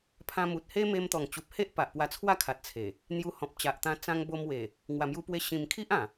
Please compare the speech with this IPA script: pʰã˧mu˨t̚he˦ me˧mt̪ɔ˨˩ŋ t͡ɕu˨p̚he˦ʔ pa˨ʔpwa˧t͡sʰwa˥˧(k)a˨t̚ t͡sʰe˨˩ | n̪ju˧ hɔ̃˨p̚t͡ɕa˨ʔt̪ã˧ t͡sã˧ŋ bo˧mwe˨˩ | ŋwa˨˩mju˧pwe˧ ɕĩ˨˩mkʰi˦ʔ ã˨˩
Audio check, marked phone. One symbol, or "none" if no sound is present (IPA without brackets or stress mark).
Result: kʰ